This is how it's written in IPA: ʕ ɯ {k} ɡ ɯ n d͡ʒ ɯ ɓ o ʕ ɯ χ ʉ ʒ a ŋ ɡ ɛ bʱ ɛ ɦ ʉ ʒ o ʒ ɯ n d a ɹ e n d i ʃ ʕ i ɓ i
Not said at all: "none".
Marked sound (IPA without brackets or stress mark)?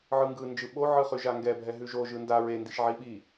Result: ŋ